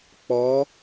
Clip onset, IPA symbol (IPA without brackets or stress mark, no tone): k͡p